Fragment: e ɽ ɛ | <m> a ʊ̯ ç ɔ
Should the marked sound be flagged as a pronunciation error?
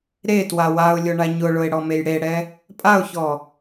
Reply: yes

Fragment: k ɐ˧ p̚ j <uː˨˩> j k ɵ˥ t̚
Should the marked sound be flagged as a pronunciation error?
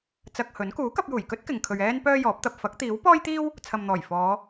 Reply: no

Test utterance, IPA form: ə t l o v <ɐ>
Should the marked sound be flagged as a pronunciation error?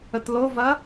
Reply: no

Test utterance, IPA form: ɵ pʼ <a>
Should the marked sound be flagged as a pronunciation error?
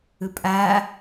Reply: no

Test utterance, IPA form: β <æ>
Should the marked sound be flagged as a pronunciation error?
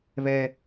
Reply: yes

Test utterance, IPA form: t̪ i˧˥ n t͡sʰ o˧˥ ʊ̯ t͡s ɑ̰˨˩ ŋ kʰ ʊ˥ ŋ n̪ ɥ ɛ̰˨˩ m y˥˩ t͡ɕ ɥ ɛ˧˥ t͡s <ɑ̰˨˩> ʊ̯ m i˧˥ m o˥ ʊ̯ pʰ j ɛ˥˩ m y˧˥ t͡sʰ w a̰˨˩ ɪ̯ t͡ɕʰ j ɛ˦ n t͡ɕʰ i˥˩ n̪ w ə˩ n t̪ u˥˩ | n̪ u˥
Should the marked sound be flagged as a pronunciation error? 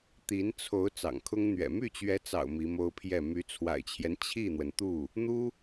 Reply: no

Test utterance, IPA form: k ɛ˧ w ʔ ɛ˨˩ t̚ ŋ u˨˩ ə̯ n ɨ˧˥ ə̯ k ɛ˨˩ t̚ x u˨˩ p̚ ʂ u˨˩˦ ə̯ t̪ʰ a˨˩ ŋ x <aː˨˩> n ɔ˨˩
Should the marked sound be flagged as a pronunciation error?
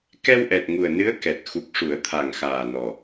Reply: no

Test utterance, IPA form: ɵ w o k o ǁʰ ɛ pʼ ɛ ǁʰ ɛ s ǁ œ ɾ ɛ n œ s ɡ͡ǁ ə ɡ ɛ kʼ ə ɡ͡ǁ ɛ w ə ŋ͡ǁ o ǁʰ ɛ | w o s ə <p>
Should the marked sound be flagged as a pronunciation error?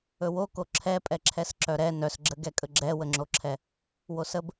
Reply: yes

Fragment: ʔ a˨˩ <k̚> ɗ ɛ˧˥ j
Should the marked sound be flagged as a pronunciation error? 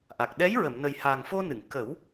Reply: no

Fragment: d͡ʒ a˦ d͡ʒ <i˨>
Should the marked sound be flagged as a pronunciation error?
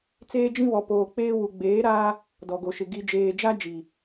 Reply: no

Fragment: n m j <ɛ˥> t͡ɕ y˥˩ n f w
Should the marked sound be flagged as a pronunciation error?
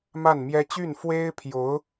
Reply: no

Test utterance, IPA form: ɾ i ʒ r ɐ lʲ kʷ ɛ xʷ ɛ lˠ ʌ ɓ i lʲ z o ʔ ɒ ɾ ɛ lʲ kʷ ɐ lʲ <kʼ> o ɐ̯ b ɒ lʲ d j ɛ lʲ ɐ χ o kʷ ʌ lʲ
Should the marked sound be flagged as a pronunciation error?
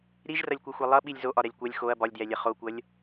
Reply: yes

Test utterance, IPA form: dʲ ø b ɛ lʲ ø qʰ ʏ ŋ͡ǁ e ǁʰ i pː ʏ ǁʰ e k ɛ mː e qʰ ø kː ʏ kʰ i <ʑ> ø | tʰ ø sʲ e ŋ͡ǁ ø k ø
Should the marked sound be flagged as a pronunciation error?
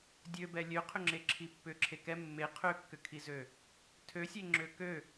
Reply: yes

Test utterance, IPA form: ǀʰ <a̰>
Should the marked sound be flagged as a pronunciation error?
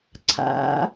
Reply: no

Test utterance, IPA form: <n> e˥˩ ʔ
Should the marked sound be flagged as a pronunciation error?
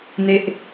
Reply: no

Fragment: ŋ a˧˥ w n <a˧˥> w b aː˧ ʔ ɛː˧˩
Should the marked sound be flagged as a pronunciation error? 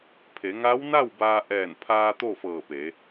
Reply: yes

